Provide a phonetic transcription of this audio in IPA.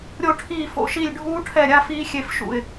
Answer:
ɾʲ o˦˨ ʈʰ iː˦˨ f o̰˦˨ ʃ i˦˨ lʲ ɖʱ uː˦˥ ʈʰ ɛ˦˨ ɾʲ a˦˥ f iː˦˥ xʲ e˦˨ f ʃ ṵ˦˨ ɪ̯

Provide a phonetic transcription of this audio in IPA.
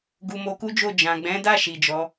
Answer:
ɡ u˨ m o˨˦ k u˦ d͡ʒ o˦˨ d͡ʒ ã˨ ɡ͡b ɛ̃˨˦ d a˦˨ ʃ i˨ d͡ʒ ɔ˨˦

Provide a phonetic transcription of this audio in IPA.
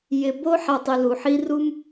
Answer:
j ɪ˨ b o˦ ħ a˨ tˤ ɪ˨ l u˩ ħ i˦ r u˥ m

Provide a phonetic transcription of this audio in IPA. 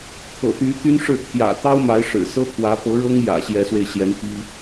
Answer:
t̪ʰ ɤ̰˨˩ t̪ y˧˥ t̪ y˥ n ʂ ɻ̩˥˩ t̪ʰ j ä̰˨˩ t̪ ɑ˥ ʊ̯ m a˧˥ ɪ̯ ʂ ɻ̩˨˩ s ɤ˥ t̪ʰ w ä˧˥ p ɤ˧˥ ɻ ɤ˥ ŋ j ä̰˨˩ ɕ j ɛ˧˥ s w e˧ ɪ̯ ɕ j ɛ˧˥ n p i˥

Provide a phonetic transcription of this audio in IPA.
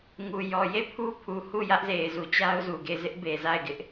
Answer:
ŋ u˨ j ɔ˨ j e˦˨ pʰ u˦ pʰ u˨ h u˦˨ j ä˦ ʔ z e˨ ɪ̯ z u˨ t͡ɕ a˦ ʊ̯ z u˨ ɡ e˦˨ ɪ̯ z ɪ˦ ʔ b e˨ z a˦˨ ɪ̯ ɡ ɪ˦ ʔ

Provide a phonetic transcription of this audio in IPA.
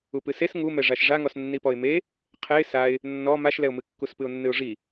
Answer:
u p ɨ s e s ŋ u m ɛ ʐ a ʃ ʐ a ŋ ɔ s nː i p ɔ ɪ̯ m e | qʰ ɛ ɪ̯ s a ɪ̯ | nː ɔ m a ʃ l ɛ ʊ̯ m ɨ kː u s p ɨ ʊ̯ nː ɨ ʊ̯ ʐ i

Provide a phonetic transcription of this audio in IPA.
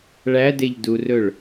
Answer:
ɭ æ d e ʎ d u r ɵ ɭ

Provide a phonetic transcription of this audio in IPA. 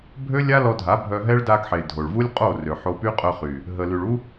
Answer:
bʱ ø˦ lʲ a˦ l ɔ˧ dʱ a˨˦ bʱ œ˧ ɦ ɛ˦ ɭ d a˧ ɡ ħ e˨ dʱ o˨ ɭ v u˦ lʲ qʼ o˦˨ r ø˨ ħ o˧ p y˦ qʼ œ˧ χ y˨ | ɦ ə˧ l y˨ ɭ u˦

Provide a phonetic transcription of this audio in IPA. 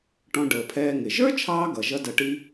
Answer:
ʈ ɔ̃˧ ɖ əː˩ pʰ ɛː˧ ŋ ɪ˩ ʒ ə˞˥ t͡ʃʰ ɑː˧ ɡ ʌ˩ ʒ ʌ˥ d ʌ˧ ʈ i˥

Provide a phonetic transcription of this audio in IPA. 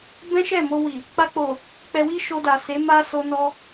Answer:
b ɛ̃˦ ʃ ɛ˦˨ m o˧ w i˨ | k͡p a˧ k͡p o˨ | k͡p ɛ˧ w i˦ ʃ o˧ d a˨ s e˨˦ m a˧ s o˧ n ɔ˧

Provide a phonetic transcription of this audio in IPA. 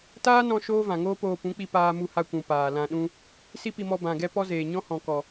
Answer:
t aː˦ n ɔ̃˧ ʃ oː˦ v ã˨ ŋ oː˦ p oː˧ p ũ˨˦ k͡p i˧ p aː˧ m u˧ h a˧ kʷ ũ˨ p aː˨ l ã˧ ɗ ũ˦ | s i˦ p i˧ m ɔ˧ b ã˨ ɡ ɛ˦ p ɔ˦ z eː˨ ɲ ɔ̃˦ h ɔ̃˨ k ɔ˨

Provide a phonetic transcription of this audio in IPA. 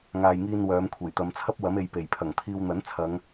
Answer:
ŋ aː˨ j ŋ iː˧ n w œː˨˧ m kʷʰ e˨˩ j t̪ ɐ˨˧ m t͡sʰ ɐ˥ p̚ w ɐ˨˥ m e˨˧ j p e˨˩ j pʰ ɐ˨˩ ŋ t̪ʰ iː˧ w n̪ ɐ˨˥ n t͡sʰ ɐ˨˧ ŋ

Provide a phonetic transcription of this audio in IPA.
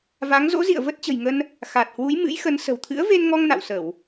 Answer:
v a˨˦ ŋ z o̰˧˥ z ḭ˧˨ ə̯ v ə˦˥ t̚ t͡ɕ ə̤˨˩ j ŋ ə˧ n | x a˨˩ t̚ h w u˨˦ j m ɨ̰˧˥ j x ə˨˦ n s ə̤˨˩ w t̪ʰ ɨ̰˧˥ ə̯ v e˧ n ŋ ɔ˧ ŋ n a̰˧˨ w s ə˧˩˨ w

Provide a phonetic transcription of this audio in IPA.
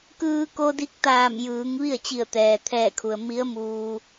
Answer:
k ɯː˧ k o˧ d i˧˥ k̚ t̪ aː˧˩ m j ɯː˩˧ ŋ ʋ i˥˨ ə̯ t͡ɕ i˧˩ ə̯ t̪ ɛː˩ t̪ʰ ɛː˧˩ kʰ u˩ ə̯ m i˧˥ ə̯ m uː˧

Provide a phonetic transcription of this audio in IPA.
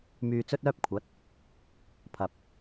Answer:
m yː˧ t͡s ɵ˥ t̚ œː˥ p̚ kʷʰ ɐ˨˥ t̚ | pʰ ɐ˨ p̚

